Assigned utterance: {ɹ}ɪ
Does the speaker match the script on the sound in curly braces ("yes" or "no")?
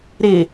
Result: no